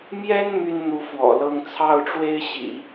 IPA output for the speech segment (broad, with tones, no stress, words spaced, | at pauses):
mjɛ˥n my˥nn̪u˧˥ fwɔ̰˨˩lɤ˥˧ŋ t͡sʰɑ˥˩ʊ̯ʈ͡ʂwe˥ɪ̯ɕḭ˨˩˦